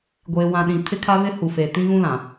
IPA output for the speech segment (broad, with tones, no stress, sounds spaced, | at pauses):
ɡʷ eː˨ w ã˨ ɗ ĩ˨ tʰ ɪ˦ kʰ a˦ β ɪ˦ h u˨ f e˨ t ĩ˦ ɣ ũ˦ l ã˨